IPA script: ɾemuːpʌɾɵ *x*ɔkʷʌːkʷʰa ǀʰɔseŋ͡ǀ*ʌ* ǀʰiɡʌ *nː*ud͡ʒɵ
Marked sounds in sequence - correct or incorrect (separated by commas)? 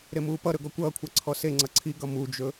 incorrect, correct, incorrect